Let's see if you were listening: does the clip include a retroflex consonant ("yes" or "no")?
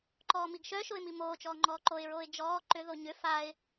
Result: no